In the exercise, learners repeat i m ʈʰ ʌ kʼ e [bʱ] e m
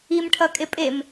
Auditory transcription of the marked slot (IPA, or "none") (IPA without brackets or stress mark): pʼ